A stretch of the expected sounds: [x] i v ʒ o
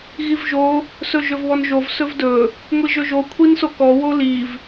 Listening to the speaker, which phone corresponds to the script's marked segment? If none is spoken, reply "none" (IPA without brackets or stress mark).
ɣ